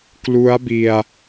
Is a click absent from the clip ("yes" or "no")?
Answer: yes